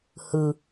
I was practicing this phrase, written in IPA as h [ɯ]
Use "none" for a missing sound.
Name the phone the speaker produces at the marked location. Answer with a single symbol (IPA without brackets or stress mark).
ɯ